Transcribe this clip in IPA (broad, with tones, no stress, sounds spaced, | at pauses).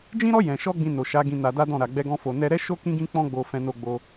d͡ʒ ĩ˦ ɾ ɔ˦ j ɛ̃˧ ʃ ɔ˦ ɡ͡b ĩ˧ n o˨ ʃ a˨˦ ɡ ĩ˧ n a˧ d a˦ d ɔ̃˦˨ ɾ a˨ ɡ͡b ɛ˧ ɡ ɔ̃˧ f o˨ n ɛ˧ ɾ ɛ˦ ʃ o˦ k ĩ˦ ɡ ĩ˦ k͡p ɔ̃˦ ɡ͡b o˧ f ɛ̃˧ n o˧ ɡ͡b o˧